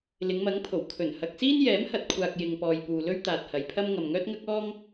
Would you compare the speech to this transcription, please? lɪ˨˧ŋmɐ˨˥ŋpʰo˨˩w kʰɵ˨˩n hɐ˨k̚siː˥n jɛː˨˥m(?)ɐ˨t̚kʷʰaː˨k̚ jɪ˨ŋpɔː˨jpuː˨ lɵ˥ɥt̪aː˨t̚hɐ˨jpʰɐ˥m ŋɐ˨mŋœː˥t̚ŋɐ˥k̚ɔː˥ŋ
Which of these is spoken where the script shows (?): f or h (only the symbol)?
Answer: h